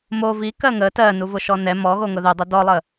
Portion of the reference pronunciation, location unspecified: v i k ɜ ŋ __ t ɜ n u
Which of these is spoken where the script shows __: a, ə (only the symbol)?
ə